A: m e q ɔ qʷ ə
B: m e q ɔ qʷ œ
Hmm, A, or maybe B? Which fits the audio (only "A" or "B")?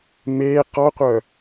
B